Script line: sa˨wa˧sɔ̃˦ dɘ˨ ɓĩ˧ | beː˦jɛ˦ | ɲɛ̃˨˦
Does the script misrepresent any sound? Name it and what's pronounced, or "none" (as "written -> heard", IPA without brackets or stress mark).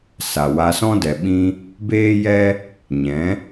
ɘ˨ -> ɛ˨